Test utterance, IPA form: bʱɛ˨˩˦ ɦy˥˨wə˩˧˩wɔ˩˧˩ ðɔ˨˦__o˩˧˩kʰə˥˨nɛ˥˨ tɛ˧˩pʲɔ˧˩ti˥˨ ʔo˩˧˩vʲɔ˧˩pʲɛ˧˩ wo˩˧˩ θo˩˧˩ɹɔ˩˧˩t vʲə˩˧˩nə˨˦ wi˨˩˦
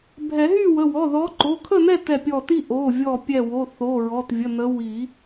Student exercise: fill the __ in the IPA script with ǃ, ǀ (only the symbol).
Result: ǃ